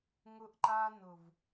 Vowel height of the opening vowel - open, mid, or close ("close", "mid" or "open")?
close